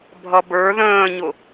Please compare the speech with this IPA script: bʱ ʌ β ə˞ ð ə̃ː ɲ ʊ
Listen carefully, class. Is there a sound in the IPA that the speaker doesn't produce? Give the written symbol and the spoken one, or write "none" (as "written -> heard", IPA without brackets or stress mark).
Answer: β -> b